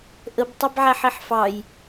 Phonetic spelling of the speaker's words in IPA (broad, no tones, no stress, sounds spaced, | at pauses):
ʔ ə b tˤ a b ʕ æ ħ i ħ f ɑ j